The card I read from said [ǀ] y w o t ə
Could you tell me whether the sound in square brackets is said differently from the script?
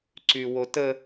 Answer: no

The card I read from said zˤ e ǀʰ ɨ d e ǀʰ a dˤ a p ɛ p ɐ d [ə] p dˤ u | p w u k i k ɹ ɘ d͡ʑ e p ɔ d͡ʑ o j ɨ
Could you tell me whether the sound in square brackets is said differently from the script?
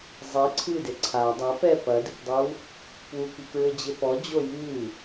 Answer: yes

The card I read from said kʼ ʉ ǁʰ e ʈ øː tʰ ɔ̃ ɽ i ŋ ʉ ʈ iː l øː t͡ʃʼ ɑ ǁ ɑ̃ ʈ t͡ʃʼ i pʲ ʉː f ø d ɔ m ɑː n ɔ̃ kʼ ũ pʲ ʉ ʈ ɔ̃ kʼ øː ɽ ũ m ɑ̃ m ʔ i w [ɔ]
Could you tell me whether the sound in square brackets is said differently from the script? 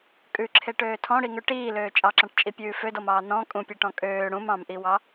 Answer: yes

